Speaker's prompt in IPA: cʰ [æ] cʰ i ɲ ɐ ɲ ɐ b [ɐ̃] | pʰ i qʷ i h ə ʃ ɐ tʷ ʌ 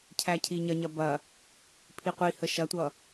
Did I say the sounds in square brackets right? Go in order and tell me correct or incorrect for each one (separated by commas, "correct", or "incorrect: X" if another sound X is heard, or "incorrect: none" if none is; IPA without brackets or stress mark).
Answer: correct, incorrect: ɐ